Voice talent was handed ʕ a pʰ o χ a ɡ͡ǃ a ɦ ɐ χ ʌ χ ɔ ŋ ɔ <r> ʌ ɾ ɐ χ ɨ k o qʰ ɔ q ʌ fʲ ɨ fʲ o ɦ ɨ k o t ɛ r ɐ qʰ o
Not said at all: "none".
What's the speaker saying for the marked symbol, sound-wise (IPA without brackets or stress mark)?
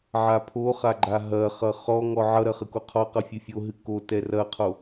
ʕ